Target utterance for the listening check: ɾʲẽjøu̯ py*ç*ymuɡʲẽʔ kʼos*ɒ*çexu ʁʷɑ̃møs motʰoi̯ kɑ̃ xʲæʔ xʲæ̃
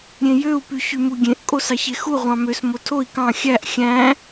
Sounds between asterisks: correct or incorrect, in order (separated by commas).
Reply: correct, incorrect